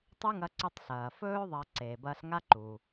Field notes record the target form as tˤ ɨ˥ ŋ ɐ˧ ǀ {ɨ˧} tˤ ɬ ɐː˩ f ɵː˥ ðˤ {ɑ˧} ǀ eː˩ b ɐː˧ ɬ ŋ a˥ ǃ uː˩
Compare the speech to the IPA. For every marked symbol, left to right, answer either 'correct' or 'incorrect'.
correct, incorrect

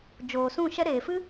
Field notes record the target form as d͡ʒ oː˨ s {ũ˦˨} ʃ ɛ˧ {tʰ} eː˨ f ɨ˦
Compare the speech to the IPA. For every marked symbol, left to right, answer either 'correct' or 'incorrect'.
correct, incorrect

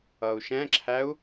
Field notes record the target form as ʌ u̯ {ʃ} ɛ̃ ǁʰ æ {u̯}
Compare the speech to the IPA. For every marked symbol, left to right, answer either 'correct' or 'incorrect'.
correct, correct

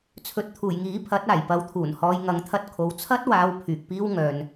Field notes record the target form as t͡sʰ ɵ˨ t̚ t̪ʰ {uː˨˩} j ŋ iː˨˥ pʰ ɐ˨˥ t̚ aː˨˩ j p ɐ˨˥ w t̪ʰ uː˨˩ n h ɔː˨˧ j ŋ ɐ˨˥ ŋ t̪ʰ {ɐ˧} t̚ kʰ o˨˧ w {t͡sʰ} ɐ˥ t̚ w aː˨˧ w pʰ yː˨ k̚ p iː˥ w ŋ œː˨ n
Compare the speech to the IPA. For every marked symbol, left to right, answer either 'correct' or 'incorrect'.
correct, correct, correct

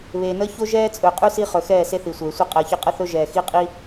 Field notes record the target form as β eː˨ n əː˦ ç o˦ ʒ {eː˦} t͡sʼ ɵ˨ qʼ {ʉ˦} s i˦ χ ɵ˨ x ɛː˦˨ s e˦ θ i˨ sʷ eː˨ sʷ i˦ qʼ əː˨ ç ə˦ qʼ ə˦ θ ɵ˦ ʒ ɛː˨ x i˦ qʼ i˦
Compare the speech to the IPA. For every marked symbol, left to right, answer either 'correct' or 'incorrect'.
incorrect, correct

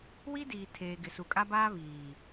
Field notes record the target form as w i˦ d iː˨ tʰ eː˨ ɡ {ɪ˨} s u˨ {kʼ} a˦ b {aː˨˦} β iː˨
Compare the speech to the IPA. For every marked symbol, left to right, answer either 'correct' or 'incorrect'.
correct, correct, incorrect

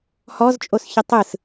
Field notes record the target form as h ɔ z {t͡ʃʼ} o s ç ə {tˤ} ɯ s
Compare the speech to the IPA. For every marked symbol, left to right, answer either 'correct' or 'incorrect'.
correct, correct

